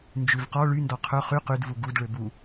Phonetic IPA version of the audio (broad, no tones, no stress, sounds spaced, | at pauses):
n d͡ʒ ʉ v q ɔ ɭ y n d ɔ qʰ ɵ χ y q y d v u ɡ u d ɭ ø b u